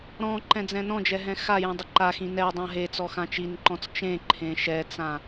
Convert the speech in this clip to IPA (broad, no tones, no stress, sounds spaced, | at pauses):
ɾ ɔ̃ ǃ ɛ̃ d͡z ɛ̃ n ɔ̃ d͡ʒ ɛ ɦ ɛ̃ x a j ĩ dˤ ɪ ǃ a x ĩ n ɛ dˤ ã ɦ e t͡s ɔ x ã t͡ʃ i n ǃ ɔ̃ t͡s t͡ʃ ẽ ǃʰ ẽ ʃ ɛ t͡s ã